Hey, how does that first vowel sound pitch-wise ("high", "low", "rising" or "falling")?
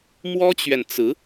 high